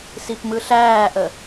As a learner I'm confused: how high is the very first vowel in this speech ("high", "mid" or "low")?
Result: high